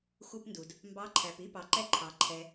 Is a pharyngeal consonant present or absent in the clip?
absent